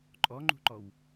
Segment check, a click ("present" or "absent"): present